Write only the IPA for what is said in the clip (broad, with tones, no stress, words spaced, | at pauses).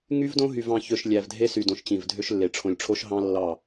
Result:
ŋy˦vdõ˦ɦy˨v ɑ̃˨çø˨ʃ lʲæ˨vdʱe˦sy˨ dõ˨ʃt͡ɕĩ˨vdʱø˦ʃlːe˨ ʈ͡ʂʰõ˨lʲʈ͡ʂʰo˦ʃɦɑ̃˦ lːɑ˦˨